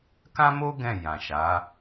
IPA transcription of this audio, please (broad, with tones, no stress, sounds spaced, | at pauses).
k ã˦ m o˦ ɡ ɛ̃˦˨ j ã˨ ʃ a˨˦